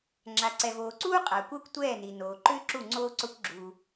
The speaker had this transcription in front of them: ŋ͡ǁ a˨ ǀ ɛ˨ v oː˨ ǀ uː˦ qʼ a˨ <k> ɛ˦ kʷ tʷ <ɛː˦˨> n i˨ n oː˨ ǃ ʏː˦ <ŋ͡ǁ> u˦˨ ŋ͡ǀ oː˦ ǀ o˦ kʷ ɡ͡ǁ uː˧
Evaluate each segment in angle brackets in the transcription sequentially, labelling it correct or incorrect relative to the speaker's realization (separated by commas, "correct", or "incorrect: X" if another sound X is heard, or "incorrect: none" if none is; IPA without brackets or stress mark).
incorrect: kʷ, correct, incorrect: ǁ